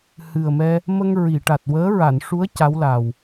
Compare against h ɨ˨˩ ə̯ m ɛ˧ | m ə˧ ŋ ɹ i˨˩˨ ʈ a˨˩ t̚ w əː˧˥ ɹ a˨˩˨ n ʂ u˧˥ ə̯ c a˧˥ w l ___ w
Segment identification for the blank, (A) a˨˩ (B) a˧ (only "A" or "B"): A